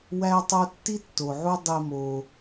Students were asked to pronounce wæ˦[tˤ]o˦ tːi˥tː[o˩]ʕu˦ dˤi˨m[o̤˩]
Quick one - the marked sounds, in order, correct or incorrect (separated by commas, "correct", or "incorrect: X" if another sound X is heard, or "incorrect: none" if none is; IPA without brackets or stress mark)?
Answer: correct, correct, incorrect: o˩